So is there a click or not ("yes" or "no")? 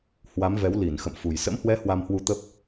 no